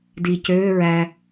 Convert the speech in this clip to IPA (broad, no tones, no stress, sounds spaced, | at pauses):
d i c øː ɹ æ